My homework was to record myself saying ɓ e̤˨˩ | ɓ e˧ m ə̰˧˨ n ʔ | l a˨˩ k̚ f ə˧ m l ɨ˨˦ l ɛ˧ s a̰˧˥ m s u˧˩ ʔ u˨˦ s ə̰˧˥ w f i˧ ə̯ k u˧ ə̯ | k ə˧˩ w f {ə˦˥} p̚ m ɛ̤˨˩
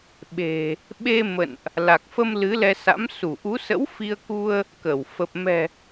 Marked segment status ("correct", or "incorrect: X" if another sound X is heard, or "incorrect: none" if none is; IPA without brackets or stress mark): incorrect: ə˨˩